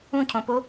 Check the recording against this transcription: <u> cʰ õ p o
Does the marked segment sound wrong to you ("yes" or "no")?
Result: yes